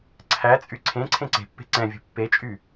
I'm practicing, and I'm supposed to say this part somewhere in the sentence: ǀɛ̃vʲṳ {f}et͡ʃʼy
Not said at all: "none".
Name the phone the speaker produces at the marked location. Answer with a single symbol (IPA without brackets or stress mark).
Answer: pː